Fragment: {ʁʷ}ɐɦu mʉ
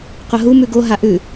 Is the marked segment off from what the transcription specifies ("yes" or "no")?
yes